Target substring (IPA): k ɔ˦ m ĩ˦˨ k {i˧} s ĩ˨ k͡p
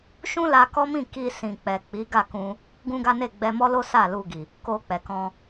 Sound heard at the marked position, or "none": i˧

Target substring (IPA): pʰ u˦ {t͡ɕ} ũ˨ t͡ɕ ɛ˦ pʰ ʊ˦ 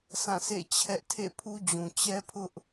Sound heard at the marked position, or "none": d͡ʑ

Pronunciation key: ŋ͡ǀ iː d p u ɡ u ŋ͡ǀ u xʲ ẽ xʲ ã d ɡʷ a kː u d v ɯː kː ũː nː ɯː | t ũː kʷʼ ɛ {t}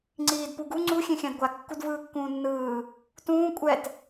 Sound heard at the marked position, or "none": t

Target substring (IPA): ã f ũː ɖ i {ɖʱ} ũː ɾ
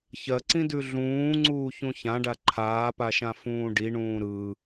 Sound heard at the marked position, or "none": ɳ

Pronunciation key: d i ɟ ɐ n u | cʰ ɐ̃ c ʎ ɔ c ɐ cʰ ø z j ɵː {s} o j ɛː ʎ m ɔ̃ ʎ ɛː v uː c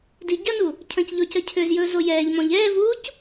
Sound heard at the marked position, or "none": z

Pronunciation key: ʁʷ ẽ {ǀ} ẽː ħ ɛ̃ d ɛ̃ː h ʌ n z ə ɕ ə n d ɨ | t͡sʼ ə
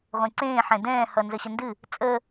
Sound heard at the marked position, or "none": ǀ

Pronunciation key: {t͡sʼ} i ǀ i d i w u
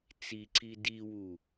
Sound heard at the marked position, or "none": t͡s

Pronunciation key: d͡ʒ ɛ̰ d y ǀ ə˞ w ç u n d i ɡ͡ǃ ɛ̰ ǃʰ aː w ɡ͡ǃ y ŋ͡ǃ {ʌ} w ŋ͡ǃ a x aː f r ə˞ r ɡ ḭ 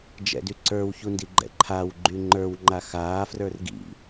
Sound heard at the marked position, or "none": ə˞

